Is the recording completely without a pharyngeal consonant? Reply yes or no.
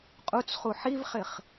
no